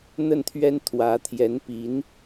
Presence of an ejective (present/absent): absent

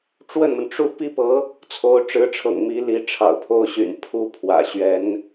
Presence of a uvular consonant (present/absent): absent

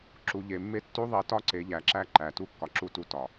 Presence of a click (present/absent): present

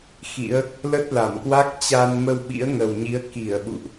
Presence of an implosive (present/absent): present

